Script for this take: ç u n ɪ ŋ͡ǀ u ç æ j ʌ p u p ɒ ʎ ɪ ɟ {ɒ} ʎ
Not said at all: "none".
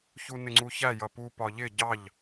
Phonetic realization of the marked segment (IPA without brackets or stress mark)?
ɑ